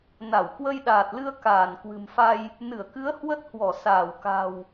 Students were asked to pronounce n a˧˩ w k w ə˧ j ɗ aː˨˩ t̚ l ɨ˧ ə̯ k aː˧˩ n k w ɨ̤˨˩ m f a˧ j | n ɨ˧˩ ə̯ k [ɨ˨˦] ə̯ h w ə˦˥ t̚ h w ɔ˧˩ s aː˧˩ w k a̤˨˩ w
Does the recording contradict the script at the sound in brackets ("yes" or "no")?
no